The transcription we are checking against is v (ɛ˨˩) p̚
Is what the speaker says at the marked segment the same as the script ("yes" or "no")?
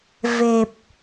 no